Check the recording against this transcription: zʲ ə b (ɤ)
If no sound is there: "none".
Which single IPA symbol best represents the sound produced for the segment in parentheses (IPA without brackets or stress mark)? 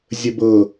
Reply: ɤ